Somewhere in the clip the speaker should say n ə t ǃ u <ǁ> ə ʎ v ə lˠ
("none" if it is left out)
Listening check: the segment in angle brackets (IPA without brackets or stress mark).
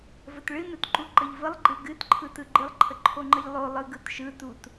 ǃ